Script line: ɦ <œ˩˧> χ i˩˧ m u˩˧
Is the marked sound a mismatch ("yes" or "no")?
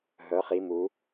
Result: no